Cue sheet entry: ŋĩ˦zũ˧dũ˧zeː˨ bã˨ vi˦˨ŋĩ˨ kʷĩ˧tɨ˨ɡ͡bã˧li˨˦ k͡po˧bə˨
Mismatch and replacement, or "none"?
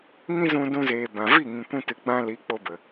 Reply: none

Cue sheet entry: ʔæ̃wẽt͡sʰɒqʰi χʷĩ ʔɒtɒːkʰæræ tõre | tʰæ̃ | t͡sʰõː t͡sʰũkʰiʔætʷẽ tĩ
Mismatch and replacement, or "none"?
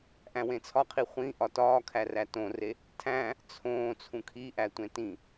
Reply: none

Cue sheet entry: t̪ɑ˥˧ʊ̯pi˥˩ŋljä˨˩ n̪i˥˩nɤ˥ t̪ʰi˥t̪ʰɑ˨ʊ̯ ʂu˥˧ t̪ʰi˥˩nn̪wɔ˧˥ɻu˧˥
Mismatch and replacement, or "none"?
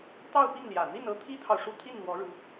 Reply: none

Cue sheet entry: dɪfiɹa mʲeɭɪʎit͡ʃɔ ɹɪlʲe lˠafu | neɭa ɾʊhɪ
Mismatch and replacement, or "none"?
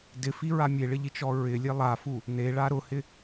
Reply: none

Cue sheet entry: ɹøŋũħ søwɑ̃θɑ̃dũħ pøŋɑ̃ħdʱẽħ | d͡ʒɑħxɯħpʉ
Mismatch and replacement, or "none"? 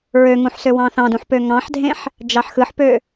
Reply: ʉ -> ø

